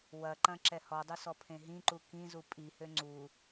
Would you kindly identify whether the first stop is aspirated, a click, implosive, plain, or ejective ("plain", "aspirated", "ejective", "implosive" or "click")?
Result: click